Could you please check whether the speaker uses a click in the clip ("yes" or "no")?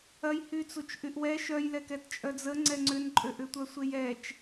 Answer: yes